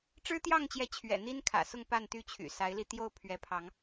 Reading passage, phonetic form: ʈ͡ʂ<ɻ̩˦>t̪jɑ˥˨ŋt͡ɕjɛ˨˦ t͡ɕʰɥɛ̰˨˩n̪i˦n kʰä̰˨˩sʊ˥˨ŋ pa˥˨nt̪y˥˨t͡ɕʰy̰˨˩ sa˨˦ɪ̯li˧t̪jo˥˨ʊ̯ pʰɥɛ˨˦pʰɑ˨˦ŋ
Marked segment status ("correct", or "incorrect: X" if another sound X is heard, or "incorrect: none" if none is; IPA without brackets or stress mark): correct